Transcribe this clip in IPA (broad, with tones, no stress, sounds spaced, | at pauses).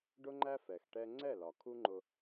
ɖ ʊ˦ ŋ͡ǃ æ˦ f ɛ˨ x ʈ ɛ˦ ŋ͡ǀ ɛ˦˨ l ɒ˨ kʰ u˦ ŋ͡ǃ ʊ˦